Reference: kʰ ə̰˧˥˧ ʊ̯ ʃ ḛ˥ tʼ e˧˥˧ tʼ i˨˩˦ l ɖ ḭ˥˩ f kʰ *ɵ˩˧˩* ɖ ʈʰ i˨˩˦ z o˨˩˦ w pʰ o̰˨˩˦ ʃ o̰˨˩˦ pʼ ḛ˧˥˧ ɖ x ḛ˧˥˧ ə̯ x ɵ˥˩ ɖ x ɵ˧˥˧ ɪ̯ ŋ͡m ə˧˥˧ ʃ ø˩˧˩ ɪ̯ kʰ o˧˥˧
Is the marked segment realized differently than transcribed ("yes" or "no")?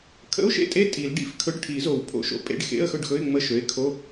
yes